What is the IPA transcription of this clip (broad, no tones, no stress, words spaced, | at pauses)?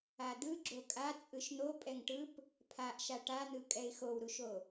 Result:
ad̪ɯ ɡ͡ǁokʼa t͡sʼɯʃn̪o pʼɛŋʈɯp | pʰaʔʃa ʈan̪ɯ kʼɛɪ̯xowɾuʃo